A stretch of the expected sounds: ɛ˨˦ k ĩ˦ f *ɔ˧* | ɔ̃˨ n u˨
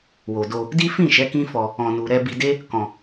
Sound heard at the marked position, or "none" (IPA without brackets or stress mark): ɔ˧